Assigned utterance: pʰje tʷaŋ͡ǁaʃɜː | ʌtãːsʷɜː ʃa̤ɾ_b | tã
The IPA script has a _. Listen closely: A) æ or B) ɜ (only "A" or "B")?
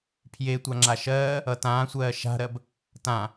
B